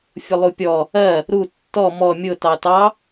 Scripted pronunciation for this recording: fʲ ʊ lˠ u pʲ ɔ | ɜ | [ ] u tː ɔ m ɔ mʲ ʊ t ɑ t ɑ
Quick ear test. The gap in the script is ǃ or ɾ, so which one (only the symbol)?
ɾ